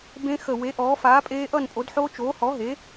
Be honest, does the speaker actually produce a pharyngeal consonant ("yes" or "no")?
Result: yes